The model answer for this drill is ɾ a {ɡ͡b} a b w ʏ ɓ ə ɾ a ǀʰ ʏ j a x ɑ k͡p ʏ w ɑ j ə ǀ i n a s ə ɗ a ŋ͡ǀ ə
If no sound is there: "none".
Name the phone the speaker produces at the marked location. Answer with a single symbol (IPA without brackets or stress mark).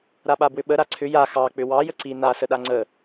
ɓ